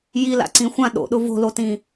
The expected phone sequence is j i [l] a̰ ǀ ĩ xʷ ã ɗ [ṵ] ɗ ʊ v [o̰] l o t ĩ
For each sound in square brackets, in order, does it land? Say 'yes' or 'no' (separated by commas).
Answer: yes, no, no